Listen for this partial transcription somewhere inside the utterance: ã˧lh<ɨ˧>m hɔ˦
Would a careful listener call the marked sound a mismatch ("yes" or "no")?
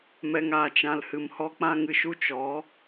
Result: yes